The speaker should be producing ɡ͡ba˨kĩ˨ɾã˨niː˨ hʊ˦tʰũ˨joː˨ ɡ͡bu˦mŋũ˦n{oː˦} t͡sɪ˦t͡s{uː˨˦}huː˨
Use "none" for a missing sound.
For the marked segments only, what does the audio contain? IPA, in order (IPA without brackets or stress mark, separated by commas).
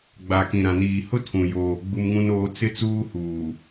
oː˦, uː˦